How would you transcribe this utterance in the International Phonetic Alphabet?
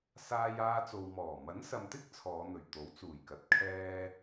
s aː˧ j aː˧ t͡s o˨ w m ɔː˨˩ m ɐ˨˥ n s ɐ˨ m t̪ ɪ˥ k̚ t͡sʰ ɔː˨˧ n̪ ɵ˨˩ ɥ t̪ o˨˥ w t͡s uː˨˩ j k ɐ˨ t̚ kʰ ɛː˧

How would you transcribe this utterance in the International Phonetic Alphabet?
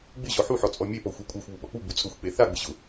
ɡ͡b ɪ ʑ ɔ ħ u ħ ɔ t͡sʼ ɔ mʲ e p ɔ xʷ a kʷʼ a xʷ β u ɓ ɔ k͡p u ɡ͡b u t͡sʼ ʊ xʷ k͡p e θ a ɡ͡b ɪ ʑ ʊ

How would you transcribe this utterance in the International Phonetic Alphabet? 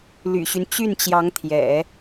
l y̰˨˩ ɕ y˦ n t͡ɕ y˥˩ n t͡ɕ j ɑ˧˥ ŋ t̪ʰ j ɛ̰˨˩˦

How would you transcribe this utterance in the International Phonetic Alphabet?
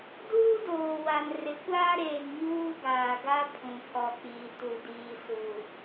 d uː˦ d oː˨ w a˨ n r ɪ˨˦ kʷ aː˦ ɾ eː˨ ŋ ɲ uː˦ ɡ aː˨ ɡ a˦ pʰ ũ˨ pʰ ɔ˨ k͡p iː˨ t u˨ d iː˨ s u˨

